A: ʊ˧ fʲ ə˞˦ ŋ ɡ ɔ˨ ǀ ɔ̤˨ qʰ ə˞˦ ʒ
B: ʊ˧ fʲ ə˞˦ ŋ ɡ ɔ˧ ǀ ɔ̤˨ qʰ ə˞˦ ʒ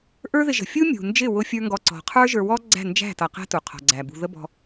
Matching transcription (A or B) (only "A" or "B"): B